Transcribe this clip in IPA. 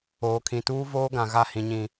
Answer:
oː˨ kʰ ĩ˨ t uː˦ v oː˦ ɡ ã˨ ɣ a˦˨ h ĩ˨ ɲ ĩ˨

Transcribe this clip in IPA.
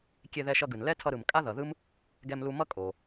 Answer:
kʲ e˧ ð ɛ˧ ʃ ʌ˧ ɡ ɯ˩ n l ɛ˥ tʰ ʌ˧ ɾ ɯ˩ m kʼ a˥ ð ʌ˩ ð ɯ˥ m | ɡ ɛ˧ m l u˧ m ʌ˥ kʼ o˩

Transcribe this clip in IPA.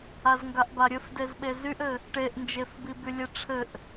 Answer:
a z ŋ ɡ a ʔ b a ɾʲ ɘ f d e z ɓ e z y ʔ ɘ | ʈ e ʔ n d͡ʒ e f b i b y lʲ e ʈ͡ʂʰ ɘ ʔ

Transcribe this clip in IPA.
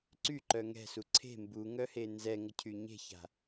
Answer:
ǀ y ǃ œ ŋ ɛ̤ s u ǀʰ e̤ m b u ŋ œ h e n z ɛ ŋ ə cʰ y ɲ e̤ ç a̤

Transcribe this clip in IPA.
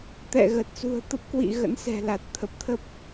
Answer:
t̪ ɛ̰˧˨ ɣ ə˨˩ t̚ s ṳ˨˩ ə̯ t̪ ə˦˥ p̚ k w ḭ˧˨ ɣ ə̰˧˥ n s ɛ̤˨˩ l a˨˩ t̚ t̪ʰ ə˨˩ p̚ t̪ʰ ə˦˥ p̚

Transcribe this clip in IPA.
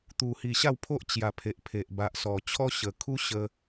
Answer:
t̪ u˨˩ h i˨˩ ɕ a˥˧ w pʰ o˦ ʔ t͡ɕ j a˨˩ pʰ e˨ ʔ pʰ e˨ ʔ b a˨ ʔ s ɔ˨˩ t͡ɕʰ ɔ˦ ɕ ə˨˩ kʰ u˦ ɕ ə˧

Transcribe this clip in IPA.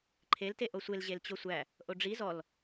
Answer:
ǃʰ e l t e ʔ o sʷ e l ʑ e l t͡ɕ o sʷ æ | ʔ o ɖ͡ʐ i z ɔ l

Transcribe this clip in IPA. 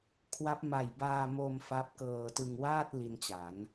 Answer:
kʰ w a˦˥ p̚ m a˨˩ j b aː˧ m o˧ m f a˦˥ p̚ k ɤː˧ t ɯ˧ ŋ w aː˥˩ t̚ l i˧ n t͡ɕ a˩˦ n

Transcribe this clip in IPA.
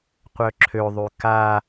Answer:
qʷ œ ǁʰ ø ðˤ y k a

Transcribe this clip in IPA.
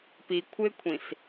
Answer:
p i kʷʰ ɪ kʷʰ ĩ s

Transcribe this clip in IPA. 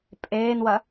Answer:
pʼ eː n w ɐ

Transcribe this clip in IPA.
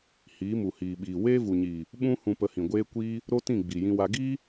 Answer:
h iː˨˦ m u˨ h iː˨ ɓ iː˨ w eː˦ v u˨ ɲ iː˨ | ɓ ũ˦ h ũ˧ p ə˧ h ĩ˨ ɡʷ eː˦ kʷ iː˦ | ɾ o˦ t ĩ˦˨ ɡ͡b i˨ j ĩ˧ w a˧ ɡ iː˦

